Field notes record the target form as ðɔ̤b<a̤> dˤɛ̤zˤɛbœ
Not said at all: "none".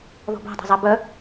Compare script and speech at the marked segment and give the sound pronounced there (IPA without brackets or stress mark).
a̤